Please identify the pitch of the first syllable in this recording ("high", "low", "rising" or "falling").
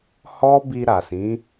high